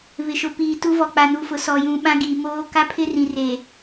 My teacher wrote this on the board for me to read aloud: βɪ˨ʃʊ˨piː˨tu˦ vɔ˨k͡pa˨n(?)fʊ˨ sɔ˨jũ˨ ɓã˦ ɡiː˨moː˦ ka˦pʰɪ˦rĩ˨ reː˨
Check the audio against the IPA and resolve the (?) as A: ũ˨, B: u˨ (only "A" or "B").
B